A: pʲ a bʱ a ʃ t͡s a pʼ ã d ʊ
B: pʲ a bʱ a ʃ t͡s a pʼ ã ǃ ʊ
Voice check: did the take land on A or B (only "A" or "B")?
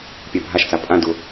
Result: A